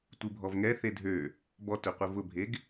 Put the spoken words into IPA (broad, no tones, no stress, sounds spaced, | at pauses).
tʷ ɯ bʱ ɔ v ŋ ɛ θ e dʱ ø | b ɔ t ø qʷ ɘ v ʊ bʱ e ɡ